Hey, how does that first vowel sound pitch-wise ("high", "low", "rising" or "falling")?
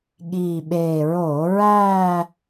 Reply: low